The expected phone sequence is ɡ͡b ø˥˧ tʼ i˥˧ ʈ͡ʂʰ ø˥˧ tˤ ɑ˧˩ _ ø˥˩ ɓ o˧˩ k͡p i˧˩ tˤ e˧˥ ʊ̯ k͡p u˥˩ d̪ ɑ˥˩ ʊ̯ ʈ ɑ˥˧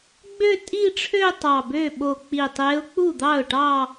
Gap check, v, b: b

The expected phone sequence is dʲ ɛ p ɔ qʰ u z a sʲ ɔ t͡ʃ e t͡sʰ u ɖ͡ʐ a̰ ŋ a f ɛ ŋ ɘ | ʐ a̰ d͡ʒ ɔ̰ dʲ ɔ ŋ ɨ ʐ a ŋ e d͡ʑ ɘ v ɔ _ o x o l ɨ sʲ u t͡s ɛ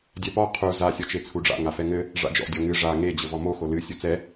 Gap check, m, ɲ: m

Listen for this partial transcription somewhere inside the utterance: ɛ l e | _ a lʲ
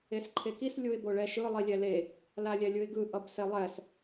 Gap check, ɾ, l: l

